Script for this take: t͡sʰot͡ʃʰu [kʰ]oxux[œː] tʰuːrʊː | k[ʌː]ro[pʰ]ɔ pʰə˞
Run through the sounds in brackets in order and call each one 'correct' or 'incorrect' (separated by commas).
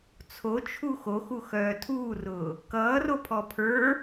incorrect, correct, correct, correct